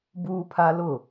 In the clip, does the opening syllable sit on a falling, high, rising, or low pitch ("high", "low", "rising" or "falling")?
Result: high